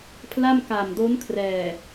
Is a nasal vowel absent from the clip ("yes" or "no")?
yes